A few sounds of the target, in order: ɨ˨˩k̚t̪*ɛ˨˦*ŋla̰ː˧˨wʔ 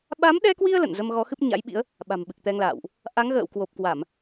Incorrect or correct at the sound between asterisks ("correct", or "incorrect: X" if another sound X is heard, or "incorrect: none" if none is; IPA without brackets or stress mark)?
incorrect: ɛ˧